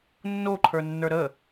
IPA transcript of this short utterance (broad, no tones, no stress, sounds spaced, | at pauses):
nː o ǃʰ ə˞ nː ə˞ ɾ ə